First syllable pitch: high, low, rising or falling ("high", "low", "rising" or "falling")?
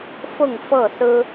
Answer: falling